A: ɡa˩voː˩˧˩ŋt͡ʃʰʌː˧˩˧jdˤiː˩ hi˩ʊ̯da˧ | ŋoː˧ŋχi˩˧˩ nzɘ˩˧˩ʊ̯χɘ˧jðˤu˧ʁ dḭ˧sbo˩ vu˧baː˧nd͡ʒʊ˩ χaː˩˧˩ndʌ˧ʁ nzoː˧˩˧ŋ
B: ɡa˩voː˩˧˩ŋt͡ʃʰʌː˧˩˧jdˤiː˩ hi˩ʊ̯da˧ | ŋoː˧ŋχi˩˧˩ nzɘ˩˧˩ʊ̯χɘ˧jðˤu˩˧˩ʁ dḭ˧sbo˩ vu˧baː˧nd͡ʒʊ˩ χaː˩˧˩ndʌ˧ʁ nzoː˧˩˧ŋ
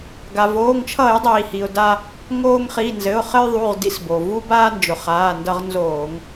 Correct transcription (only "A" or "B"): B